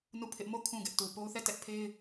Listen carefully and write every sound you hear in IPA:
nu˦˨pʰɪ˦ʔ mo˦˨ kʰũ˦˨ɡɛ˦ʔtu˨ po˦ʊ̯θɛ˦˨tɛ˦ʔ pʰe˦ɪ̯

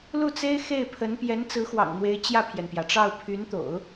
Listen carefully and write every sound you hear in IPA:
lu˥˩t͡se˥ɪ̯ xe˥˩ɪ̯pʰə˧˥n pjɛ˧˥nt͡sɹ̩˧˥xwɑ̰˨˩ŋn̪we˧˥ɪ̯ t͡ɕjä˥˩pʰjɛ˩npjä˩ʈ͡ʂɑ˥˩ʊ̯ pʰy˧˥nt̪o̰˨˩˦ʊ̯

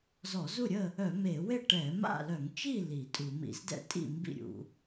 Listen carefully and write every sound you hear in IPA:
zɔ˧˩˧zu˥˨ɾʲə˥˨ | œ˧˩˧me˧˩˧we˥˨ ʈɛ˧˩˧ma̰˥˨lœ˧˩˧ŋ t͡ʃi˥˨ li˧˩˧tʼu˧˩˧ mḭ˧˩˧zdɛ̰˥˨tʼḭ˥˨ mbḭ˥˨ɾʲṵ˧˩˧

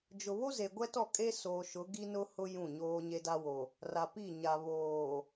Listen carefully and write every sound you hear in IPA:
d͡ʒʊ˨ βo˦ze˨ɡʷɛ˦tɔ˦˨ kʼe˦soː˨ʃʊ˨˦ ɡi˦nʊ˦hʊ˦ jũ˦˨ɲoː˦ ɲe˦da˦wo˨ | ra˨pi˦˨ɲa˨βoː˨

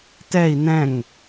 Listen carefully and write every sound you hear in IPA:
tɛi̯ nɛ̃ŋ

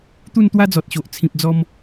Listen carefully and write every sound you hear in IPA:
t̪u˥˧nt̪wa˦d͡zɔ˨t̚ɕo˨ʔ t͡sʰĩ˨p̚d͡zɔ˧m

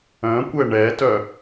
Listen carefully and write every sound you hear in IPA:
œ̃kʷɛ ɳɛtœ

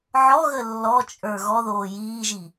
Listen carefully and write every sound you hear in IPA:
ʕɔɣə lːɔt͡ʃʼə˞ ɣɔðoː jiːʒi

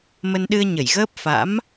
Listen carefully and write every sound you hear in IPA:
mə˧nɗɨ˧ə̯ɲə˧˩jɣəː˦˥p̚ fa̰˧˥m

